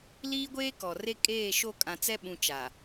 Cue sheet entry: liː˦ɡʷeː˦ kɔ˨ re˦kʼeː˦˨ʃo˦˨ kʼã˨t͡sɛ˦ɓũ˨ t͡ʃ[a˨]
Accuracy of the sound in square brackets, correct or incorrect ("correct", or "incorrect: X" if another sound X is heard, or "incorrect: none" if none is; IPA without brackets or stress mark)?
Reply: correct